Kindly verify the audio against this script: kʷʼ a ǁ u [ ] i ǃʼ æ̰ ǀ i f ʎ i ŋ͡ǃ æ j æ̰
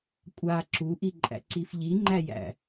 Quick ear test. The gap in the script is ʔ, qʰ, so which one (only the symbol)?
ʔ